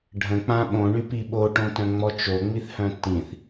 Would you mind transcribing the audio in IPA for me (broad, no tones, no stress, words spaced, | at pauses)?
ɖʱə̃k͡pã ɓõɳypi ɓoʈõtœ̃ŋ͡mɔ t͡ʃoŋ͡miθhœ̃ tĩθ